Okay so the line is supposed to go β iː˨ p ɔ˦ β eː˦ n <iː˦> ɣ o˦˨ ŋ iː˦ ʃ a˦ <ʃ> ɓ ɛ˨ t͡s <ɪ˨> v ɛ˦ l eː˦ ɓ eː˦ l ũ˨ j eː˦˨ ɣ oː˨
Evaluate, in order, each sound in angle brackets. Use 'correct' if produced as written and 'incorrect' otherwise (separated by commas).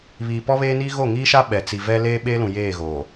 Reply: correct, incorrect, incorrect